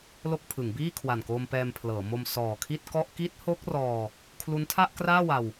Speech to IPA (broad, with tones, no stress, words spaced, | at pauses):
lo˥˩k̚ pʰɯ˩˦ŋ biː˥˩kʰwa˨˩nkoː˧m pɛː˧mpʰlɤː˩˦mo˧m sɔː˨˩ kʰi˥˩t̚kɔ˥˩ʔ ki˦˥t̚ho˦˥k̚ rɔː˧ | kʰlu˦˥ntʰa˥˩ʔkraː˥˩wa˧w